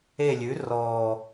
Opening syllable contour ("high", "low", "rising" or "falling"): falling